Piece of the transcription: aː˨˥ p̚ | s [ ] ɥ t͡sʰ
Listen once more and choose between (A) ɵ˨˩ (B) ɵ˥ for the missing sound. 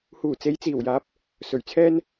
A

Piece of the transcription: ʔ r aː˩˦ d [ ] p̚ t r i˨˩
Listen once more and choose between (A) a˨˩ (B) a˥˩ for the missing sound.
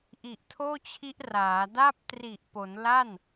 B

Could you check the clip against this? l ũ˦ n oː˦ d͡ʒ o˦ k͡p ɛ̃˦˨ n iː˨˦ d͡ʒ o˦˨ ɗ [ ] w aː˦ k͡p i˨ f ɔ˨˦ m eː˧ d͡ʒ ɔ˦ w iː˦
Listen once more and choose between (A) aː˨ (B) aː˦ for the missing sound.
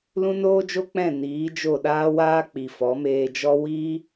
B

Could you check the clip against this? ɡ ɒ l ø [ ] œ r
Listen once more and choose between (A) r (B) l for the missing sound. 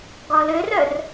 A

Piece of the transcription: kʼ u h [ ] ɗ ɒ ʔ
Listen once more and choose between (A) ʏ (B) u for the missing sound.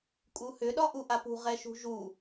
A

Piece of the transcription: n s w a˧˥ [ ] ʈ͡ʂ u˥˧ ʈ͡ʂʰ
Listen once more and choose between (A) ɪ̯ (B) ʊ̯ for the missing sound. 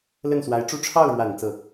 A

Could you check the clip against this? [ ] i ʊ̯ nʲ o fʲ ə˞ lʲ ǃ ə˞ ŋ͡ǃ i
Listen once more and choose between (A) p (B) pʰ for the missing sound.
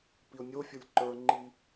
A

